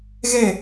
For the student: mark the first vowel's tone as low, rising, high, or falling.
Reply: falling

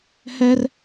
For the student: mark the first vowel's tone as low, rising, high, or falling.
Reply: high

